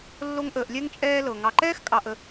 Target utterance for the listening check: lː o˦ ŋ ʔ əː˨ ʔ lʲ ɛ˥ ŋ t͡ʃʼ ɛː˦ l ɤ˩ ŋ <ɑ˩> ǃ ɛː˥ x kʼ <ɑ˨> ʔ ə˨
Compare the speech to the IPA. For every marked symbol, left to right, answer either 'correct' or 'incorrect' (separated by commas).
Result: incorrect, correct